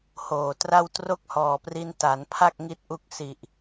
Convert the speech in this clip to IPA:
hoː˨˩tra˥˩w tro˥˩k̚hɔː˨˩pri˧n ta˩˦npʰa˥˩k̚ ŋi˥˩t̚ʔu˥˩k̚ si˨˩ʔ

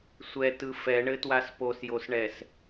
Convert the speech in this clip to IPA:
sʷɛtɯ fɛɳɘtwas posjosɳɛs

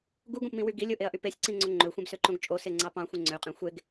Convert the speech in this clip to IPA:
ɡuɡõpmĩwy ɡilʲoʔeɐ̯ʔy pesʲǀĩŋ͡ǀo ŋ͡ǃøxʷẽbsøǃõɡ t͡ʃʼoseŋ͡ǀɑ pɑ̃xʷẽ ŋ͡ǀøqʼẽ xʷeɡ

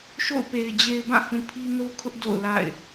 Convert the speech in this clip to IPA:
ʃo̰˦˨ʊ̯pe˨ɪ̯ d͡ʑe˨ɪ̯bã˦˨hũ˨ pʰi˦no˦kʰʊ˦ʔ do̰˦˨ʊ̯la̰˦˨ɪ̯

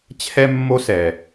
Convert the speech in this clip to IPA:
t͡ɕʰɛ˥ mːo˥sɛ˩

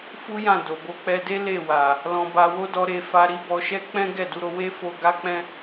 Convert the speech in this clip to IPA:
fu˦jã˦˨ do˨bo˨˦k͡pɛ˧de˦ le˦˨wa˨ | lɔ̃˧ba˧wo˦dɔ˧ ɾe˧fa˧ɾi˦ bɔ˧ʃɛ˦k͡pɛ̃˦ɡɛ˦˨ du˨˦ɾo˧ we˦fo˧ ɡa˦k͡pɛ̃˦

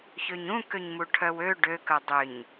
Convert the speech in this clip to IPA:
çøɲũ køɲmuʈʰœwø ɖø kœdˤʏɲ

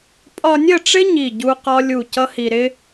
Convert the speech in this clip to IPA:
pʼɒ˧nʲə˦˨ʈ͡ʂɪ˦ ɲi˦˨ɟu˦qɒ˦lʲu˦˨ cʌ˦hi˧ɾɪ˦

